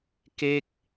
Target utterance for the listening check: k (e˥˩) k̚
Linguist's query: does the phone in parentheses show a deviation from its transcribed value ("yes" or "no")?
no